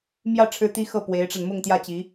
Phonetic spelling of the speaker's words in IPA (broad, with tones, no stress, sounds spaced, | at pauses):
m j ä˥˩ ʈ͡ʂʰ ɻ̩˥ t̪ i˥ x ɤ˥˩ p w e˧˥ ɪ̯ ʈ͡ʂ a˧ n m ʊ˥˧ ŋ t̪ j ä˥˩ t͡ɕ i˧˥